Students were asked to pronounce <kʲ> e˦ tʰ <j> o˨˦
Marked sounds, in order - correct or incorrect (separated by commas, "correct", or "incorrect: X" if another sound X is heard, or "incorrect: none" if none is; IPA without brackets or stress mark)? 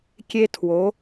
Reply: correct, incorrect: w